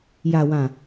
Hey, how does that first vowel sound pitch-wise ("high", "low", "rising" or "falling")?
low